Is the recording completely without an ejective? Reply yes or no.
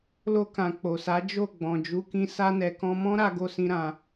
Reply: yes